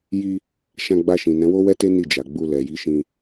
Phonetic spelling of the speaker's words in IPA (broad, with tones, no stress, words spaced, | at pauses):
ji˧ | ʃã˧ɡ͡ba˧ʃĩ˨ nɛ̃˨˦wo˦wɛ˦te˦ ni˦˨d͡ʒa˨ɡ͡bu˧ lɛ˨ji˨˦ ʃĩ˧